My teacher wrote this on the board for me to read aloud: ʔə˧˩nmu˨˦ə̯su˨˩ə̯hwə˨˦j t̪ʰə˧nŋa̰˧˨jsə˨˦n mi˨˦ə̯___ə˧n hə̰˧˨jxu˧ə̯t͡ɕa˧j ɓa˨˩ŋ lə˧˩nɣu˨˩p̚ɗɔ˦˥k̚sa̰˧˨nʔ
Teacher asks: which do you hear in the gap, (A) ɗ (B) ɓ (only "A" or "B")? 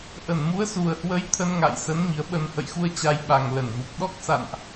B